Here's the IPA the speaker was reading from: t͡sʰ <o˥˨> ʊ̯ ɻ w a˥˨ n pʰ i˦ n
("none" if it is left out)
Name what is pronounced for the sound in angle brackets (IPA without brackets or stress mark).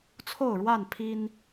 o˥˨